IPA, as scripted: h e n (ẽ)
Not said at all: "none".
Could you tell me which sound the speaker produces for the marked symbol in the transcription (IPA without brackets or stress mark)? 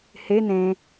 ẽ